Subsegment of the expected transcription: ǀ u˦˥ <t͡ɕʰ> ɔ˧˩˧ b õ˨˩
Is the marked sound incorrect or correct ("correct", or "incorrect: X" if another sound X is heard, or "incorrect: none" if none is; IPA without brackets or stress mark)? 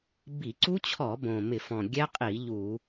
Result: correct